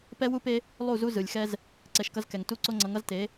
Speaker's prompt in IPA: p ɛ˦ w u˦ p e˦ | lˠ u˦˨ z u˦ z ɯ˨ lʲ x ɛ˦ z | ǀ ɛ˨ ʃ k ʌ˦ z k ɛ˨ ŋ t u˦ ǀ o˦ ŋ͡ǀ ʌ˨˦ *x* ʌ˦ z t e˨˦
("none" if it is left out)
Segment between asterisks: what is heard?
ŋ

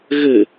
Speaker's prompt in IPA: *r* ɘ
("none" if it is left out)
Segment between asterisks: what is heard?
ɣ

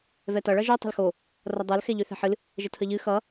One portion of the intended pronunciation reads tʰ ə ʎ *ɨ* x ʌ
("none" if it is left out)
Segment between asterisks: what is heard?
ɨ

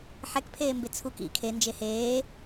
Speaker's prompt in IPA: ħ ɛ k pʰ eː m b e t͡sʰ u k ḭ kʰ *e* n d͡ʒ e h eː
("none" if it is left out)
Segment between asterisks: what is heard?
e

